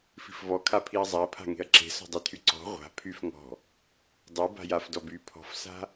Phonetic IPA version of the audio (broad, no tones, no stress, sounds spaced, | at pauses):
f i̤ f v ɔ kʰ a pʰ i ɐ̯ zˤ a ɐ̯ pʰ a̤ ŋ e̤ ɐ̯ ǁ e̤ s ɔ̤ dˤ e tʰ y ǀ ɔ̤ ʁʷ a̤ pʰ y f ŋ ɔ̤ | dˤ y b a̤ j a f d ɔ b y pʰ ɔ̤ f s a̤